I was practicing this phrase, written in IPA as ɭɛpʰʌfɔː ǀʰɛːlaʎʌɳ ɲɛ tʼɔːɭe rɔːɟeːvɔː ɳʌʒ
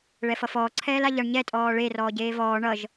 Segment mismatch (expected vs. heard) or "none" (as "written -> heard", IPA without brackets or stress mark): pʰ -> f